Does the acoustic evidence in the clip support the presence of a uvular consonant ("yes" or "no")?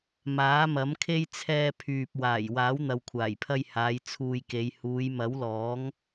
no